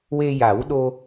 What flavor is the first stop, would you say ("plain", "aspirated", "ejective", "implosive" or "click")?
implosive